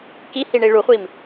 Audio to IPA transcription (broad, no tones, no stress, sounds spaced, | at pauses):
k i h i ɳ i ɭ u χʷ i m